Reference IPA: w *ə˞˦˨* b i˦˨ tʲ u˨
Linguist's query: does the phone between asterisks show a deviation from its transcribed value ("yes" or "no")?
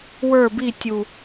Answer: no